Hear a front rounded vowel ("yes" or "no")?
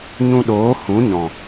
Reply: no